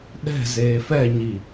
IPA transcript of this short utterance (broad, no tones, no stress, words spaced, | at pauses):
ɗɛ̤ zeːfɛɲi